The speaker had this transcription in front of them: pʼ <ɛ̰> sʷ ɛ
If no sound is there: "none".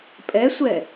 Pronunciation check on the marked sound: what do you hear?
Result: ɛ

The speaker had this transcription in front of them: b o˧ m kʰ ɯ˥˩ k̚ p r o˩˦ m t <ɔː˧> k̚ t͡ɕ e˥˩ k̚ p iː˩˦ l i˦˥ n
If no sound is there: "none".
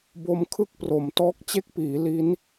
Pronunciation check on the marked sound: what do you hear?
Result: ɔː˦˥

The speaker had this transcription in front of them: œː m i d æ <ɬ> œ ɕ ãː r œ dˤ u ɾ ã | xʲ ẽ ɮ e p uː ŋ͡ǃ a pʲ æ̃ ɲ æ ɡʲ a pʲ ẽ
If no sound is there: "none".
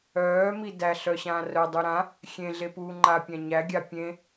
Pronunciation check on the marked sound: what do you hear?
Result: ɬ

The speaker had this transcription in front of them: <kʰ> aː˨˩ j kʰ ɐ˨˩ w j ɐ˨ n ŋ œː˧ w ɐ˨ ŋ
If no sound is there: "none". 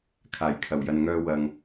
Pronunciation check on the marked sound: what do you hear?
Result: kʰ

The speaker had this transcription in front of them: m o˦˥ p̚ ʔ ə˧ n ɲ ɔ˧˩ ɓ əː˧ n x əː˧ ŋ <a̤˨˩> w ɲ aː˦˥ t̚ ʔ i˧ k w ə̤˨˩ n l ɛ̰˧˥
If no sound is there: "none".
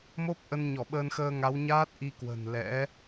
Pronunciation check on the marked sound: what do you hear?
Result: a˨˦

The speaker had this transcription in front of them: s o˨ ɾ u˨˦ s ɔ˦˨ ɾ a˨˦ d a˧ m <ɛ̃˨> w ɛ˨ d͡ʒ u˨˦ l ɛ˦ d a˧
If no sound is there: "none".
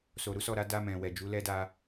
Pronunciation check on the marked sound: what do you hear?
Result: ɛ̃˨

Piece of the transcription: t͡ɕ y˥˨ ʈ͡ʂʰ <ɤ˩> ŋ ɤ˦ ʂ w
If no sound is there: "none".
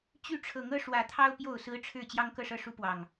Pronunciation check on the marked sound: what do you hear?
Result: ɤ˨˦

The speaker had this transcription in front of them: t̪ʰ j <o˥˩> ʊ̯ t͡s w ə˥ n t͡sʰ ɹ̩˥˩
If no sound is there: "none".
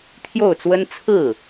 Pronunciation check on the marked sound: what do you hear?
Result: o˥˩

